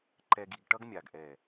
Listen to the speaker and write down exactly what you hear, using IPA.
ǃɛ˧ɡ i˧ɡʈʌ˦ɡmʲa˨ɡ ʔɛ˨

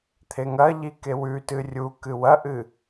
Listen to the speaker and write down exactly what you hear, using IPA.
t̪ʰeŋɐʎi kewʉtɨ rʲu kɨwɐʔɨ

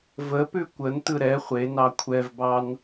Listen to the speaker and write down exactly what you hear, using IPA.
vəpʉ kʷəntɯ ɾɛ χʷenɑ kʷʰɛvbɑn

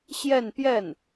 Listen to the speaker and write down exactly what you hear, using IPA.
ɕjɛ˥˧npjɛ˥˩n

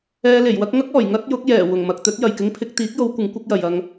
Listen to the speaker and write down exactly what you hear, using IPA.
ɛː˧le˨˩jwɐ˥k̚ ŋɐ˥k̚ɔː˨˩j ŋɐ˥t̚jʊ˨˥k̚ jɛː˨˩wʊ˨˩ŋ mɐ˨k̚t̪ɵ˨˥t̚ jɐ˨˩jkɪ˧ŋpʰɪ˧k̚ t̪iː˨˥k̚jo˨˧wkʷɪ˨˧ŋ kʷɪ˥k̚jɐ˨jɐ˧ŋ

